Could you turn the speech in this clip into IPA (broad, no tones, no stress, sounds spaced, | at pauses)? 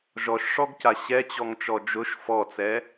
ʒ ɔ ʃ ʂ ɔ ɡ c a ɕ ɛ t͡ɕ ɔ ŋ t͡ʃ ɔ d͡ʒ ʊ ʃ f ɔ t͡s ɛ